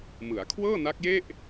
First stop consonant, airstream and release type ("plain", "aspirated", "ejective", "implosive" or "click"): aspirated